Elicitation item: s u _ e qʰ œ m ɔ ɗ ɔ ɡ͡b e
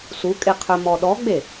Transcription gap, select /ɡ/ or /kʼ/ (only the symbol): kʼ